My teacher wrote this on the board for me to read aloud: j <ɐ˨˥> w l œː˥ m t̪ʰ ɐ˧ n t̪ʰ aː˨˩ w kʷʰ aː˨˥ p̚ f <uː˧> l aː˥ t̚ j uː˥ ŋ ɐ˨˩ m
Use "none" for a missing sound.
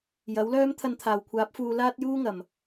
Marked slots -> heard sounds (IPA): ɐ˨˥, uː˨

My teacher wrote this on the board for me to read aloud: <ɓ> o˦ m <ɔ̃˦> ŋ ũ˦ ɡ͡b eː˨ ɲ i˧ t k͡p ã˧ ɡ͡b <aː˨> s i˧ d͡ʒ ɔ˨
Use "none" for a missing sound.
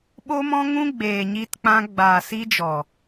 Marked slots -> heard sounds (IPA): ɓ, ɔ̃˦, aː˨

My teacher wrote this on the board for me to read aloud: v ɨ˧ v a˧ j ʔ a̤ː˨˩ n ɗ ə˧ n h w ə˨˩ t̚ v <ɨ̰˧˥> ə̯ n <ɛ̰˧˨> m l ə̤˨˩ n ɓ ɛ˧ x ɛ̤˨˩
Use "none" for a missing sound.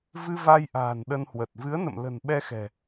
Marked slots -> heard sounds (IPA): ɨ˨˦, ə̰˧˨

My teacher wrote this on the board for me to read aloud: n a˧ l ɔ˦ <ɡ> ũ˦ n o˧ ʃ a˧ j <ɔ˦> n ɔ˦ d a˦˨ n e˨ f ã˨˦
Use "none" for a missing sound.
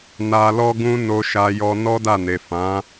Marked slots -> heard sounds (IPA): ɡ, ɔ˧

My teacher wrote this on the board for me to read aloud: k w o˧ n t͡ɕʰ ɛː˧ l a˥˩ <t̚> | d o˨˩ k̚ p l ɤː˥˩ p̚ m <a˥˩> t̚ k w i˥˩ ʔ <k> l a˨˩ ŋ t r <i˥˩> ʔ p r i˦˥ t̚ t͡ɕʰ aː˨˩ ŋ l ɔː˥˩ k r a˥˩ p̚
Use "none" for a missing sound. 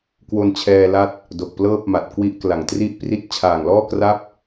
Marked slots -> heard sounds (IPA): t̚, a˨˩, k, i˥˩

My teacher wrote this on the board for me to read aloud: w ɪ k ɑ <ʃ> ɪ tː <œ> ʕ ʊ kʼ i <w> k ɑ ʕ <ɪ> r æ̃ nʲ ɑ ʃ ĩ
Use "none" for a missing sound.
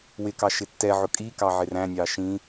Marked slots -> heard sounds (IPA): ʃ, ɛ, none, ɪ

